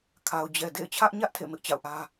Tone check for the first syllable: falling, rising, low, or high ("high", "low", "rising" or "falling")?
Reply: low